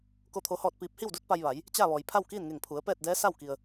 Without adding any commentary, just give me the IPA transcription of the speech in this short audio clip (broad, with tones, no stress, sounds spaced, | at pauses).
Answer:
k o˥˨ t̪ʰ o˧˥ h ɔː˥˨ t̚ p iː˧˥ p̚ h i˥˨ w d u˧˥ t̚ p a˧ j ʋ a˩˧ j | t͡ɕ a˥˨ ʋ ɔː˩ j pʰ a˥˨ w k iː˥˨ n ŋ e˧˩ ŋ pʰ u˩˧ ə̯ p ɛː˥˨ t̚ d ɛː˧˥ s a˥˨ w k i˩ ə̯